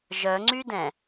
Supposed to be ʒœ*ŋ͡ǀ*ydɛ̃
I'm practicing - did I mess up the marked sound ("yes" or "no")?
no